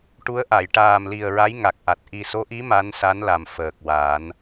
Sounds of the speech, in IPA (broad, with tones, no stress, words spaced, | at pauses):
ʈu˧˥ə̯ʔa˨˩˨j ʈaː˨˩mli˨˩ə̯ɹa˧˥j ŋa˨˩k̚ʔa˨˩t̚ ʔi˨˩so˧˥ʔi˧˥ ma˧˥nsa˧˥n la˨˩mfəː˨˩k̚ waː˨˩˦n